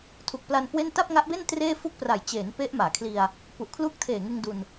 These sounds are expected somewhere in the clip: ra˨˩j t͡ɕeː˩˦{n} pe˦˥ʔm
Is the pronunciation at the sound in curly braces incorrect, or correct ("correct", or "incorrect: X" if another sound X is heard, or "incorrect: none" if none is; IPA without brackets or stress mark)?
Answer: correct